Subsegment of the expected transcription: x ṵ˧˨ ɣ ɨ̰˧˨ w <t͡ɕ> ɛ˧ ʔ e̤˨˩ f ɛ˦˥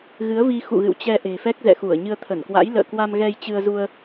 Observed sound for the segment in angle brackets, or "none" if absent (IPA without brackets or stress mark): t͡ɕ